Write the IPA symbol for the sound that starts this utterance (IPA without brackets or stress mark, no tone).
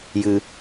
j